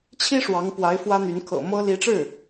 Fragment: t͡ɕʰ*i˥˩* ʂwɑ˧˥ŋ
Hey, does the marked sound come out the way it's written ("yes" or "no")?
no